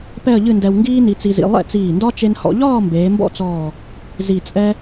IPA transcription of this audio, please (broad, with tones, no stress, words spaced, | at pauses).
pɛ˥˧ə̯ʎɨ˥˧ndɛ˧w ŋɡiː˥ni˧t͡si˧zḭ˧ lˠɛ̰˥˧t͡siː˧˩ndɒ˥ t͡ʃe˧nhɔ̰˧ʎɒː˥˧ mbeː˩˧mbɔ̰˥t͡sɔː˧˩ | zi˧˩t͡sʼɛ˥